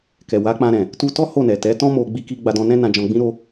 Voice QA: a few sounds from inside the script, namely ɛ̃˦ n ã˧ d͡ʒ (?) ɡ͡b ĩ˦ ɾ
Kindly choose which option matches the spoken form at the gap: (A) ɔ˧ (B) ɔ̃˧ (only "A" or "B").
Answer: B